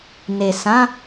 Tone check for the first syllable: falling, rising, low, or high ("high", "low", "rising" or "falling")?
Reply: low